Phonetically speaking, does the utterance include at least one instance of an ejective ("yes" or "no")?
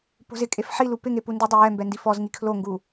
yes